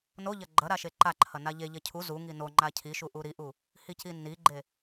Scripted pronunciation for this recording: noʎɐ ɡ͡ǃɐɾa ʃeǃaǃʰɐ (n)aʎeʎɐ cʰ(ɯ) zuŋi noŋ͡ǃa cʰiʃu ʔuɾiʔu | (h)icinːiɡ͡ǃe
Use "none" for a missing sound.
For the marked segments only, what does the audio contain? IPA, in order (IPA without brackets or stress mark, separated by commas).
n, u, h